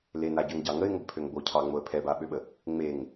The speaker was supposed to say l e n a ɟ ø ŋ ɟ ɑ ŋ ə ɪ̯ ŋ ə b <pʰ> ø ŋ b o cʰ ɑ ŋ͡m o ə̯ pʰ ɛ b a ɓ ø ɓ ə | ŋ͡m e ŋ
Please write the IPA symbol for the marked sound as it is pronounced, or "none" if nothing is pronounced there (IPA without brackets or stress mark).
pʰ